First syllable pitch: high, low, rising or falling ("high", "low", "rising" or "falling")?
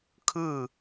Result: falling